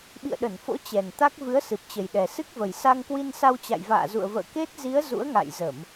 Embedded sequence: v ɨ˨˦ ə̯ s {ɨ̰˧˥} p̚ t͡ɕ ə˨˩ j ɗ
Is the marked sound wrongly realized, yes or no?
yes